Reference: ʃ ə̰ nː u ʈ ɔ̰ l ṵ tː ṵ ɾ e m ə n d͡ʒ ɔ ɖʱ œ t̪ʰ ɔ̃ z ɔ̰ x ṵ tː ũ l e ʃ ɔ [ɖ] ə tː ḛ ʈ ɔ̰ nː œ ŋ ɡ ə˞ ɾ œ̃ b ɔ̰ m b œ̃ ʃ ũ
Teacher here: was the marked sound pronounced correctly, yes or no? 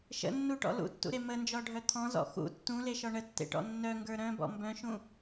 no